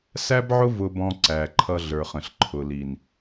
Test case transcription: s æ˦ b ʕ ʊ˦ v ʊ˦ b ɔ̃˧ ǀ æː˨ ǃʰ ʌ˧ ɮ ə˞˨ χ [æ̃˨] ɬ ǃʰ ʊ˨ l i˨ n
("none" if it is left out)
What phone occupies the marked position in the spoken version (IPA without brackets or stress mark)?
ə̃˨